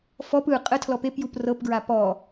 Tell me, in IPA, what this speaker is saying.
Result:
fɔp ɯ qʼə tʰlɔpepjup rɤpɡɹa pɔ

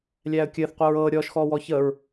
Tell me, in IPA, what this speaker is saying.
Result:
lʲæːə̯kʲɘːθ qʷəːɹɤː ɾʲɔːʃxɔːwɔː çəːɹ

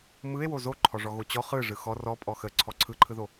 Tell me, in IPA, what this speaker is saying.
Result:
mɯe̯wo zoǃʰɔʐɔ ɣot͡ɕɔ χɯ ʐɯxɔ rɔpʼɔ xə ǀʰɔǀʰɯǃʰɯðo

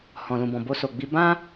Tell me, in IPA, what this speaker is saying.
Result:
hɔ̃˨lũ˨bɔ̃˨ bo˧so˨ɡ͡bi˧ bã˦

